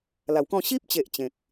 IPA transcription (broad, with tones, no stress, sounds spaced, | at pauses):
l a˨˩ w k ɔ̃˥˧ ɕ i˦ p̚ t͡ɕ e˨ ʔ t͡ɕ ẽ˨ k̚